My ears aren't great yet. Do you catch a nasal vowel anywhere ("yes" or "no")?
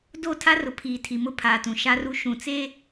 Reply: yes